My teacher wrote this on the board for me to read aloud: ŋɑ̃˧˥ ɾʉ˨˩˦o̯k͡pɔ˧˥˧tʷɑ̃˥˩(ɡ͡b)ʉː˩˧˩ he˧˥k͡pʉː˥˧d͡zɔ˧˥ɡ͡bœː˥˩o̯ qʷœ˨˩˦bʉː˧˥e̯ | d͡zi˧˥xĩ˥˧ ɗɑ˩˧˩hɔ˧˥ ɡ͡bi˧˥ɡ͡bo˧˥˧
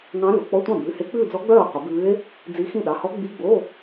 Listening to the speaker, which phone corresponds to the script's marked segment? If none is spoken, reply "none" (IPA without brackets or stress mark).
b